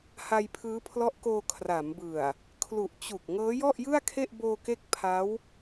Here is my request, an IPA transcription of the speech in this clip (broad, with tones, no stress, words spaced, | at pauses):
ha˧jpʰɯː˦˥pʰlɔ˦˥ʔkoː˧ kʰra˩˦mbɯ˨˩a̯ | kʰlu˨˩ʔ t͡ɕu˨˩k̚ ŋɤː˦˥jɔ˥˩ʔjɯ˥˩a̯kʰe˥˩ʔ boː˧ke˦˥k̚ pʰa˦˥w